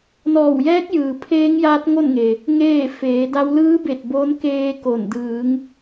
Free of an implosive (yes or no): yes